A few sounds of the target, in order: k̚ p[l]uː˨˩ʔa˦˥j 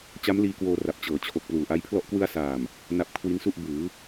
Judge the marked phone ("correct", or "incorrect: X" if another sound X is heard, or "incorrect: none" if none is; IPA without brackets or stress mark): correct